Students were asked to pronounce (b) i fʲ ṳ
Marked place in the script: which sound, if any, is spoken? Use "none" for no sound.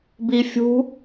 b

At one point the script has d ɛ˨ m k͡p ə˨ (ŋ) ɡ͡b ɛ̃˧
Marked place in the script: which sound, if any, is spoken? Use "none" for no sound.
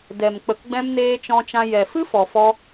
k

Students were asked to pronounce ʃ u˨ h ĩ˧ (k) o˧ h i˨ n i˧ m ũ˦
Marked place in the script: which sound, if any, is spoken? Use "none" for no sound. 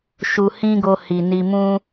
ɡ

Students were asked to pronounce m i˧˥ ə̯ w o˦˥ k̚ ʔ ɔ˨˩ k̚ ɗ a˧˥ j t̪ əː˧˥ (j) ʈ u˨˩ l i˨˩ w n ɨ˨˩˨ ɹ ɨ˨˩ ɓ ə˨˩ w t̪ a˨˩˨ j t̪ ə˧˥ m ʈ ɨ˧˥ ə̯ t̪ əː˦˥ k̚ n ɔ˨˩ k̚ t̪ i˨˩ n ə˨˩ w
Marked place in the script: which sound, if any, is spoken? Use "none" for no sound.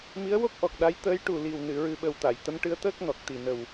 j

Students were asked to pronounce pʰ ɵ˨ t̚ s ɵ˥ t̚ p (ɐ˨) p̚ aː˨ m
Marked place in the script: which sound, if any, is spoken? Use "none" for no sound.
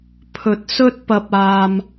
ɐ˨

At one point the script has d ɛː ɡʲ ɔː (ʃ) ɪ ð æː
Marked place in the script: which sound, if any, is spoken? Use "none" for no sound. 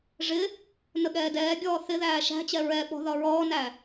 θ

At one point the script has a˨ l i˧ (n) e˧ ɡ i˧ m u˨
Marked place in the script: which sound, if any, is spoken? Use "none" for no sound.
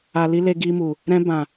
l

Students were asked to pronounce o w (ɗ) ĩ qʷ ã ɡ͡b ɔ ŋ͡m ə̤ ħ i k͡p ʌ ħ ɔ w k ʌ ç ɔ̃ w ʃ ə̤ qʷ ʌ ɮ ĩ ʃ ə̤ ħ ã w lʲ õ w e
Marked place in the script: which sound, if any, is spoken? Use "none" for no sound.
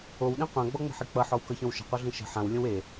ɗ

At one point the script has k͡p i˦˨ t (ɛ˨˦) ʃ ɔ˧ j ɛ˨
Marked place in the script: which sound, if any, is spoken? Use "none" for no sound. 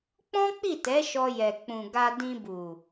ɛ˨˦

